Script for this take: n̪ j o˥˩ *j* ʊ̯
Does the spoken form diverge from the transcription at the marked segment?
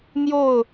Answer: yes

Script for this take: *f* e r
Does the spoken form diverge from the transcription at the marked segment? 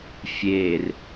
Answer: yes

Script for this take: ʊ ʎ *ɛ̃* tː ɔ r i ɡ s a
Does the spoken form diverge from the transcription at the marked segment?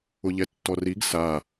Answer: yes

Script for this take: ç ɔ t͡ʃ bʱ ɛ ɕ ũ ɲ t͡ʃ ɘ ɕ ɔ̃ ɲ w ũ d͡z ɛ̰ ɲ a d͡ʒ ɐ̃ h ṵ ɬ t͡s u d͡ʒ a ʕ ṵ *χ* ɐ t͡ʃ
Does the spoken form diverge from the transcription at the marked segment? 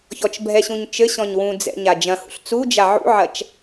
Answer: yes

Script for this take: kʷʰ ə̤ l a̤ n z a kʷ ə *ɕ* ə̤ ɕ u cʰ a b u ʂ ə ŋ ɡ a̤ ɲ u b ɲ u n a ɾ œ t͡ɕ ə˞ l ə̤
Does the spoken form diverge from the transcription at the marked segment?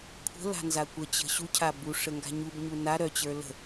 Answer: yes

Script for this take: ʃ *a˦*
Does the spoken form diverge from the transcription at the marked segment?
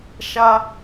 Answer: no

